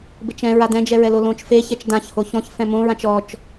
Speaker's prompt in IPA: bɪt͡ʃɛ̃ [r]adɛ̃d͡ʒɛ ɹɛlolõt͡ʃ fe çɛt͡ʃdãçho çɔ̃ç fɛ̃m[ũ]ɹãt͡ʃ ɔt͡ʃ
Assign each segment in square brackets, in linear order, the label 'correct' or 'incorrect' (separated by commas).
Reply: incorrect, incorrect